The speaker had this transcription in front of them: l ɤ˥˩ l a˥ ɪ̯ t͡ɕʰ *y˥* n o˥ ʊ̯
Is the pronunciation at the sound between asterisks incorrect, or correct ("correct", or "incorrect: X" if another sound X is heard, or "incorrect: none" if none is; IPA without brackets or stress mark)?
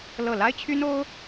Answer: correct